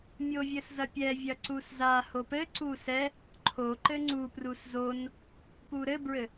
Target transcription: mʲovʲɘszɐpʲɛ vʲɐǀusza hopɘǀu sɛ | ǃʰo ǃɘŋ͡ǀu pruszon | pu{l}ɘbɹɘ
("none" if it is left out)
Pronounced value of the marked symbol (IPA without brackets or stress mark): ɾ